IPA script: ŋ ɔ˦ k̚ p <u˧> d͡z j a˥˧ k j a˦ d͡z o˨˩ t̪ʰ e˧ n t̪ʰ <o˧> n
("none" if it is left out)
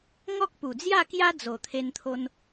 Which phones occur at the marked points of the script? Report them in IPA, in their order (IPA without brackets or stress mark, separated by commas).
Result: u˨˩, o˧